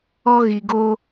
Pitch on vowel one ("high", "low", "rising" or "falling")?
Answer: high